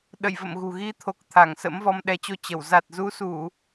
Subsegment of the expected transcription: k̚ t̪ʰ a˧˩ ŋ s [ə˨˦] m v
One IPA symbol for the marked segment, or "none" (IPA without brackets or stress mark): ə̰˧˥